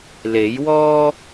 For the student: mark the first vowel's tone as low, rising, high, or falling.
rising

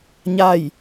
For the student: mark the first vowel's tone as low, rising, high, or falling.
falling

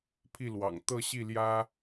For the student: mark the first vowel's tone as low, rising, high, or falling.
falling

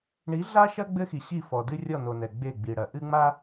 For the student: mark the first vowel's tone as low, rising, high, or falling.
rising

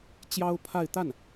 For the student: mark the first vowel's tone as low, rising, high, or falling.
high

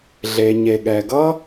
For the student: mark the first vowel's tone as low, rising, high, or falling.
low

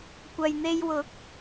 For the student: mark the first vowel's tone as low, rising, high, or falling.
low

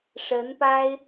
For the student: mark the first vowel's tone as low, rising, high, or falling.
rising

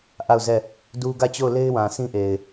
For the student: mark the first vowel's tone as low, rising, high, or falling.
falling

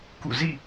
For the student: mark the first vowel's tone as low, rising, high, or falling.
falling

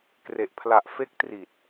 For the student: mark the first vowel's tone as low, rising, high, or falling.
low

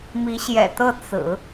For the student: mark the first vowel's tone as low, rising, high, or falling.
rising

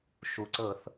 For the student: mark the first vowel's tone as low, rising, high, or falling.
low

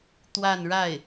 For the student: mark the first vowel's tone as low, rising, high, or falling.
falling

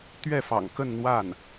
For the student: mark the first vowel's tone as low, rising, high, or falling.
falling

